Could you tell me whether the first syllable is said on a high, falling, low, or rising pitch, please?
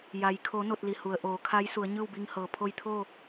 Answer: low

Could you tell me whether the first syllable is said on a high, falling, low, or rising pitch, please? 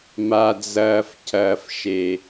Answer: low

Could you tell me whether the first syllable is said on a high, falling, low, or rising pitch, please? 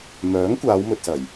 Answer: rising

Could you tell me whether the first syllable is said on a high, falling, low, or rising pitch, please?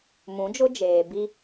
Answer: rising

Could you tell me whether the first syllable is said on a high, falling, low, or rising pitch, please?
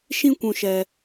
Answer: high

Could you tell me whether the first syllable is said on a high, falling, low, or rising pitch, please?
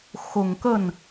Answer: low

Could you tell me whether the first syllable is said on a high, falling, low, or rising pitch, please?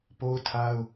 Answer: high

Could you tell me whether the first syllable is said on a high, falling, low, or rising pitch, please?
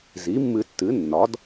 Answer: rising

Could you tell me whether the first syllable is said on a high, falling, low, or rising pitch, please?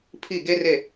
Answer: falling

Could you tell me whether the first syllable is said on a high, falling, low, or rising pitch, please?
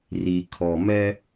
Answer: low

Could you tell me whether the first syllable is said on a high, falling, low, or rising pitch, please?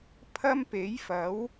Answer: high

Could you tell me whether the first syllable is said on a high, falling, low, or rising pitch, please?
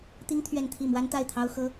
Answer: high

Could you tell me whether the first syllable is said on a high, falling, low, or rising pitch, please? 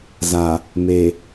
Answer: low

